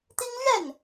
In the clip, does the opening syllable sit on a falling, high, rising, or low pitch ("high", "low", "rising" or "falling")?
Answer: high